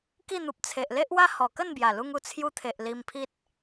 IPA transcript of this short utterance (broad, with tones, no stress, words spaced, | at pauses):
ki˥˧n̪u˨p̚ t͡sʰe˨ʔle˦ʔwa˦ hɔ˨˩kə˥˧nbja˨˩lu˧ŋ u˧t͡sʰju˧t̪ʰe˨ʔ li˧mpʰi˦t̚